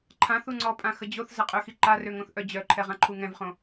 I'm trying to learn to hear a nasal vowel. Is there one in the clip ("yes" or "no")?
yes